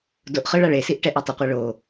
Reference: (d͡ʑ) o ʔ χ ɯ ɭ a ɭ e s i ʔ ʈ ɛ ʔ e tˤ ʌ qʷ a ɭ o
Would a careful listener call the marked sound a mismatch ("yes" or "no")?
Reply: yes